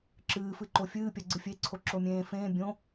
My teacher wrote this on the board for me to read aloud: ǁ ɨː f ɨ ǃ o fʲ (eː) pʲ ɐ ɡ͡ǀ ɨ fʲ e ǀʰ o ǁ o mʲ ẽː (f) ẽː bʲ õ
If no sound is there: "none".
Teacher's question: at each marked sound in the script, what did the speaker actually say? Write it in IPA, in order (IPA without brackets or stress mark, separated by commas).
ɨː, f